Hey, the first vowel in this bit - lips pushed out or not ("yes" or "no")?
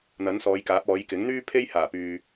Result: no